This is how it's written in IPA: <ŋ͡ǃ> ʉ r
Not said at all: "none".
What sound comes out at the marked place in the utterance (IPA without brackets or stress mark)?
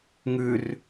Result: ŋ